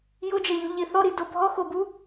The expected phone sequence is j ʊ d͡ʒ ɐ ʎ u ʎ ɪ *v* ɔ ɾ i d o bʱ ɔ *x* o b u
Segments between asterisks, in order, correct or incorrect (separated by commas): incorrect, correct